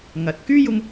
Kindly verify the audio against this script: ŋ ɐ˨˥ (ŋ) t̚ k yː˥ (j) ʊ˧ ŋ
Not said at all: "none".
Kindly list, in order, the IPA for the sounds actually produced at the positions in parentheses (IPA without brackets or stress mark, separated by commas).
none, j